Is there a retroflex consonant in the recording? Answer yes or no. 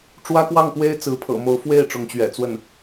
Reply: yes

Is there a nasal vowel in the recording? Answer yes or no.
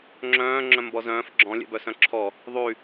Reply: yes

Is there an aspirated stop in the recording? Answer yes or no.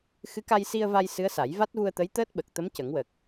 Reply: no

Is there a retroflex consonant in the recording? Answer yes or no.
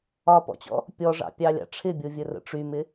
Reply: yes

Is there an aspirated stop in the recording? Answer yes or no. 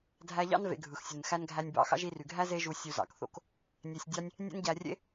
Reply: no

